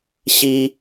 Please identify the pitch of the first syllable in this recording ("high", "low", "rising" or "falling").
high